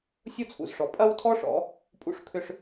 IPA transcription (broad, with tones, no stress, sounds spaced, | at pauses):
sʲ u˥ t͡sʰ ṵ˩ z ʂ ɔ˩ pʼ ɐ˥ w tʰ ɔ˥ ʂ ɔ̰˩˧ | pʼ ṵ˧ ʂ kʰ ʏ˧ ʂ